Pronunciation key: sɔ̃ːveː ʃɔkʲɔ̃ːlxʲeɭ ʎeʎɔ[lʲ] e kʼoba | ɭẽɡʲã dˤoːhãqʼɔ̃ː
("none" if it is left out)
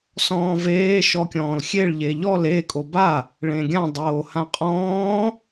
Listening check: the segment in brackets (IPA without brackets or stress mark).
l